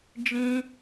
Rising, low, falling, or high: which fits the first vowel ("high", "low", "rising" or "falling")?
high